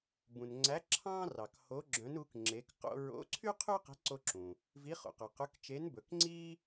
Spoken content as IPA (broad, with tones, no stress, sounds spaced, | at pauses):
b ũ˨ n ŋ͡ǀ æ˧˥ ǁʰ ɑ̃˥ r ɑ˨ k h o˧˥ ɡ͡ǁ œ̃˧˥ n u˧˥ k ŋ͡ǁ e˧˥ k q o̰˥ ɹ o̰˧˥ ǀʰ y˥ qʰ ʉ˥ q e̤˧˥ ǀ o˥ ǁ ũ˨ | v i˧˥ χ o̰˨ q œ˨ q ʉ˧˥ k t͡ʃ e˧˥ n b ɵ˨ k ŋ͡ǀ i˥